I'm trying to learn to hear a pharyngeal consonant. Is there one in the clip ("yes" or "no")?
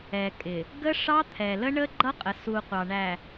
no